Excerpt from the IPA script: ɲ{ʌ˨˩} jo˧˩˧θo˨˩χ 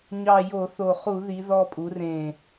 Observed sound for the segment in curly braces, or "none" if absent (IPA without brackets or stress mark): ɑ˨˩